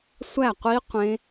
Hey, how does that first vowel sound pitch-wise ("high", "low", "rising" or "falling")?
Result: falling